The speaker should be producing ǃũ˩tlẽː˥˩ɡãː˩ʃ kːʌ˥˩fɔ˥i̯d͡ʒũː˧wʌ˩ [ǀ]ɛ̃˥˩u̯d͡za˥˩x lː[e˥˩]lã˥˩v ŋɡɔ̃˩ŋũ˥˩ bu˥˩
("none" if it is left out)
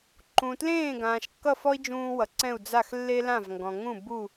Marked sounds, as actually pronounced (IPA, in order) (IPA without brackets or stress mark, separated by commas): ǀ, e˥